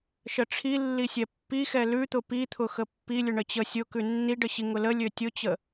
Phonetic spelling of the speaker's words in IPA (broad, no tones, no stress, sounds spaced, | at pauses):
ʃ ə ʈ͡ʂʰ i lː i sʲ ɛ pː i x ɛ l ʉ t̪ ʊ p i t̪ʰ ʊ x ə pː i lʲ ʊ ɳ ə t͡ɕ ə sʲ ʊ k ʉ nː i ɖ ə ɕ i ŋ ʊ l ə lʲ ø tʲ ʊ t͡ɕ ə